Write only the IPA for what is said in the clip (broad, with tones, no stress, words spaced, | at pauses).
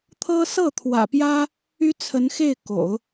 t̪ʰɤ˥ sɤ˥˩ t̪ʰwä̰˨˩pjä˥ | y˥t͡sʰə˧˥nxe˥˩ɪ̯ ko̰˨˩˦ʊ̯